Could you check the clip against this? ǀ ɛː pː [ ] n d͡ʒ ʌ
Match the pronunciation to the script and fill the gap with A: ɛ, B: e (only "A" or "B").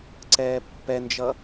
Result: A